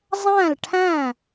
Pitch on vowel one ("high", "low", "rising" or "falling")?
falling